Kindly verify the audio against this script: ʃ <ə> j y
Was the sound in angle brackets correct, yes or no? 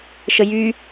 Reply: yes